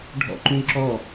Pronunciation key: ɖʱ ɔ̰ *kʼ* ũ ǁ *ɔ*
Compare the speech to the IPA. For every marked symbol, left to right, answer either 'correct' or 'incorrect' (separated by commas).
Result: incorrect, correct